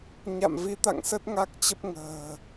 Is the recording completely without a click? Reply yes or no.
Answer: yes